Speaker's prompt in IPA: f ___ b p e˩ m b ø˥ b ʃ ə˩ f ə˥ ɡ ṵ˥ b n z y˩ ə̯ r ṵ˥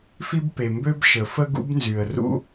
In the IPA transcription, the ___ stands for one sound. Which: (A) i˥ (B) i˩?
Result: A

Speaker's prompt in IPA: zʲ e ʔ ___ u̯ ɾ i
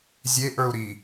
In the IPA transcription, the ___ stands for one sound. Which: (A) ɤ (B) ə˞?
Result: B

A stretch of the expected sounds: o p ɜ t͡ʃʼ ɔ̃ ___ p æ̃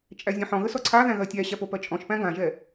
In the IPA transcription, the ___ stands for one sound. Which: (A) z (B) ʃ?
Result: B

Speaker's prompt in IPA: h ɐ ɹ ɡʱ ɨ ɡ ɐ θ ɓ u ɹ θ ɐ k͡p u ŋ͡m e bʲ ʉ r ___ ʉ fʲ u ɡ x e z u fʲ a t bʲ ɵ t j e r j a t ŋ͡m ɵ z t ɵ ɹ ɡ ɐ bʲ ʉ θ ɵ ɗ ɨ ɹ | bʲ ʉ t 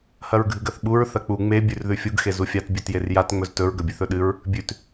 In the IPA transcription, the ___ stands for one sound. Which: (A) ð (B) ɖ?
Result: A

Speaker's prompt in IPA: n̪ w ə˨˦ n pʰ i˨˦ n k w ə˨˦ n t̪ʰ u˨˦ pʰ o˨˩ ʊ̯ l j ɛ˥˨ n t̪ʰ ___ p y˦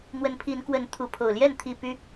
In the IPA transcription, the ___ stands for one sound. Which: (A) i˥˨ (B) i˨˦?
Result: A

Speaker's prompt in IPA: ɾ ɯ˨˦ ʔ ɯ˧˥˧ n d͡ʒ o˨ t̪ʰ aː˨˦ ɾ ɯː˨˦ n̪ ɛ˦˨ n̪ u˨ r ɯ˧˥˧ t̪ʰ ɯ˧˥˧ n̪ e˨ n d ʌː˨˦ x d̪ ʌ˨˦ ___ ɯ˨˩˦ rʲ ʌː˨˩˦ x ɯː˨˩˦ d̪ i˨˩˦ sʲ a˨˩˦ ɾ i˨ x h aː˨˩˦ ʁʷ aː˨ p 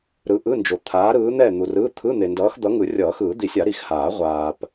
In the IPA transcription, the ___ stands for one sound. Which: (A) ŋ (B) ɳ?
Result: A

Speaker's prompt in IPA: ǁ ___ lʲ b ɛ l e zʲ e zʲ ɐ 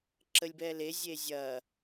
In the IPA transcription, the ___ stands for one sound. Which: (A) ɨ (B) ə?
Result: B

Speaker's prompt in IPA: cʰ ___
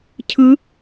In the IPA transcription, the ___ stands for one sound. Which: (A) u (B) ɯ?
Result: B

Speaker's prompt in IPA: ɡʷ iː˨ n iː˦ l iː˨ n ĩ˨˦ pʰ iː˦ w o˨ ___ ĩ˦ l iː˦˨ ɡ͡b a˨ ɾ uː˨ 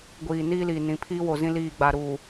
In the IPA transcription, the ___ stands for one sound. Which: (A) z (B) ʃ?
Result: A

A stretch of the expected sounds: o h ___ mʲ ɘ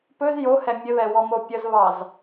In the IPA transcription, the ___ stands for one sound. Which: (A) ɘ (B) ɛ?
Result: B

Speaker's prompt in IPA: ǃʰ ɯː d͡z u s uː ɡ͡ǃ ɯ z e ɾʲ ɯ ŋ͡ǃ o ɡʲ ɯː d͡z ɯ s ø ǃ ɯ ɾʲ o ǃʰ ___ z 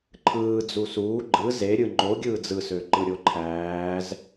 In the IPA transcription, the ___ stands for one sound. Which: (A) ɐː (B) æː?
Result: B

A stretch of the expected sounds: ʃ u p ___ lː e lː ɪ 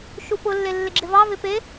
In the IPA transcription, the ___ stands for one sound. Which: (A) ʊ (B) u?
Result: A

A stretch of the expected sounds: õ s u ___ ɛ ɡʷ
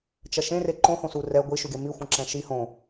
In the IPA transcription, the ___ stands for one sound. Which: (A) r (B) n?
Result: A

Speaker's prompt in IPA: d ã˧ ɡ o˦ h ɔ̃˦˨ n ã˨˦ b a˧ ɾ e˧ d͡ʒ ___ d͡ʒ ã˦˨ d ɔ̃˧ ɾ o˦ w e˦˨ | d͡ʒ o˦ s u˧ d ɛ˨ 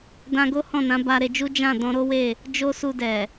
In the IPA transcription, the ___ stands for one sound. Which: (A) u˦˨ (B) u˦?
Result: B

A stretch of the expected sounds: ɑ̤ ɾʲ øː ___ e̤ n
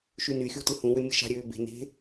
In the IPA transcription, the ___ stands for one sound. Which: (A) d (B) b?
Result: B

